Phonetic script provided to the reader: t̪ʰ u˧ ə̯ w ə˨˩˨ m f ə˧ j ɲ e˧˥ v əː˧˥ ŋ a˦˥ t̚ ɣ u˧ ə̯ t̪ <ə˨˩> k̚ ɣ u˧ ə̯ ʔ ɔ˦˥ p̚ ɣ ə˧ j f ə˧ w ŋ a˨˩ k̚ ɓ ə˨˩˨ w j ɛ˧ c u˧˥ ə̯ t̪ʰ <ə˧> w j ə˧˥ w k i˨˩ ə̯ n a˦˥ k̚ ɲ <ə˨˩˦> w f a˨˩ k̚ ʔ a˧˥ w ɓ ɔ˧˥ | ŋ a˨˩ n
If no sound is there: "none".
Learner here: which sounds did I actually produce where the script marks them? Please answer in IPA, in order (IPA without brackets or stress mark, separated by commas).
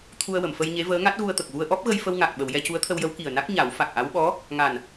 ə˨˩, ə˧, a˨˩˦